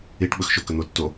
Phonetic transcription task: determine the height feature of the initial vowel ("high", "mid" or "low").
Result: high